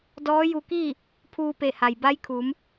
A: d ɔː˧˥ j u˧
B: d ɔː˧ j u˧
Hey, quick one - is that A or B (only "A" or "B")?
A